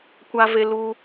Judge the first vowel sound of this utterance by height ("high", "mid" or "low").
low